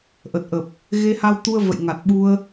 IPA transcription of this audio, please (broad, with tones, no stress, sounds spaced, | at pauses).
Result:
ʔ ə˨˩ t̚ ʔ ə˨˩ p̚ | ɣ e˧ h a˧ w t̪ u˧ ə̯ v ə̰˧˨ j ŋ a˨˩ t̚ ɓ u˧ ə̯